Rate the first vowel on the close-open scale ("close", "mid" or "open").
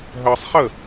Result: mid